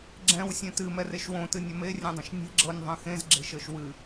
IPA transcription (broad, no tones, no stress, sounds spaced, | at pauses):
ɡ͡ǁ ɛ̃ w sʲ ɛ̃ t ɨ m ɛ r e ʃ w õ t ɨ nʲ ɐ m e rʲ ɛ̃ dˤ ɐ̃ ʃ nʲ e̤ ɡ͡ǁ ɤ nʲ ðˤ ɛ̃ x ẽ z ɡ͡ǁ e̤ ʃ ɤ ʃ w ɨ